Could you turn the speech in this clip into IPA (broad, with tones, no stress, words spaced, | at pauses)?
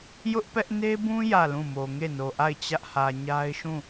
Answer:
jʊ˦ʔpɛ˦ʔ ne˦bũ˦ jä˦˨lũ˦˨mo˨ ŋe˦˨no˨ʔa˦˨ɪ̯ t͡ɕä˦ʔhä˨ ɲa˦ɪ̯ʃũ˦˨